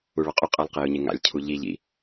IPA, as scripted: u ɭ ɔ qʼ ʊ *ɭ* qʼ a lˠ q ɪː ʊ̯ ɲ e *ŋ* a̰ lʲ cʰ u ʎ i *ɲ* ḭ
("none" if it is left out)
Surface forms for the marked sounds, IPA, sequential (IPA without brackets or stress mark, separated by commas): none, ŋ, ʎ